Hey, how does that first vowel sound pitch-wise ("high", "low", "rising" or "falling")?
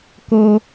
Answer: high